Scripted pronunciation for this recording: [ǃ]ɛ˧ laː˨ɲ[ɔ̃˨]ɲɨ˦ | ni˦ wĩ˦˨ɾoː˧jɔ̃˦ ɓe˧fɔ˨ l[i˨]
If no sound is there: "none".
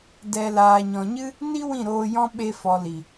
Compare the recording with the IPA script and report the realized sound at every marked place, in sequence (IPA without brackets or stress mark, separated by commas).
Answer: d, ɔ̃˨, i˨